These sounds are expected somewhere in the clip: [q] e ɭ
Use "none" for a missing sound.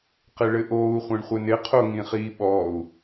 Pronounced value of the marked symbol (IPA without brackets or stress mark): q